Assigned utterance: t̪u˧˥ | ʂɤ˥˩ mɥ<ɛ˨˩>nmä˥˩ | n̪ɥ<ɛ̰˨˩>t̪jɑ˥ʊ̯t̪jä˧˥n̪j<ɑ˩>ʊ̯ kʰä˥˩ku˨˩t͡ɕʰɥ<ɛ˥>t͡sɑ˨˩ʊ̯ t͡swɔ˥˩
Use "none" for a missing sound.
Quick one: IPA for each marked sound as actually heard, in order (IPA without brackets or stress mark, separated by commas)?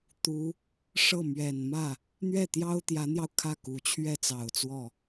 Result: ɛ˨˩, ɛ˥˩, ɑ˧, ɛ˥˩